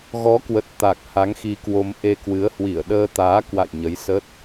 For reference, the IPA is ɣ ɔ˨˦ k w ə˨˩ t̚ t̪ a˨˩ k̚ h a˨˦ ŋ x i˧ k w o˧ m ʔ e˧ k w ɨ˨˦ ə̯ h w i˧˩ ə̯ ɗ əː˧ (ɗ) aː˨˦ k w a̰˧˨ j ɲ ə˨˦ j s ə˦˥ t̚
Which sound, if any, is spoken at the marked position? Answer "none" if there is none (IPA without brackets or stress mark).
t̪